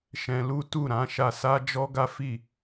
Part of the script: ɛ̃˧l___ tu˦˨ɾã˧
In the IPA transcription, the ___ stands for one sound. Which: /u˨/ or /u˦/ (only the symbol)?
u˦